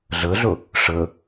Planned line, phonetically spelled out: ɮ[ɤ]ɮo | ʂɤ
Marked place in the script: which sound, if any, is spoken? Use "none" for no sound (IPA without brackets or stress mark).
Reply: ɤ